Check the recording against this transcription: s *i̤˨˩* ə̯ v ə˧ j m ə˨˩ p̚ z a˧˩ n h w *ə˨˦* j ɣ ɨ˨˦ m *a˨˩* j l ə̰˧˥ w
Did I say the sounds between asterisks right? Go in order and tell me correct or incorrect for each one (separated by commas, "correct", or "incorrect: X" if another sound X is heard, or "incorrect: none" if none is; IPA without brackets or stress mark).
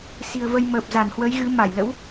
correct, correct, incorrect: a˧˩